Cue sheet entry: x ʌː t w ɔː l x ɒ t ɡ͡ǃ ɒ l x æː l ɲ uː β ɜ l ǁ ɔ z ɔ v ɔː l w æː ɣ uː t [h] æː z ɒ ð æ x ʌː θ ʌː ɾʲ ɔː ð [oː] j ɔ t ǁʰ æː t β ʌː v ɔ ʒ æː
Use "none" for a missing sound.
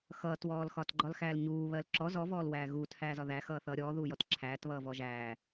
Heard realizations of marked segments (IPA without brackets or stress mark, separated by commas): h, uː